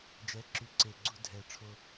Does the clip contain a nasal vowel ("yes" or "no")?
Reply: no